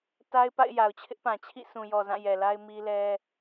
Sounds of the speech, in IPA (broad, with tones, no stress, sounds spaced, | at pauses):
t a˦ ɪ̯ p a̰˦˨ ɪ̯ j a˨ ʊ̯ t͡ɕʰ ɪ˦ ʔ p ã˨ t͡ɕʰ ḭ˦˨ s ũ˨ j ɔ˨ z ã˦˨ j ɛ˨ l a˦ ɪ̯ m i˦ l ɛ˦